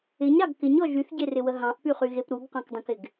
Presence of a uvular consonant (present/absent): present